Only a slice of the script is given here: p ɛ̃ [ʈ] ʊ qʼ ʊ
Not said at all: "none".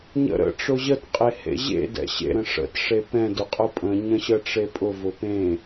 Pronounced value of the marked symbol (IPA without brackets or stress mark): d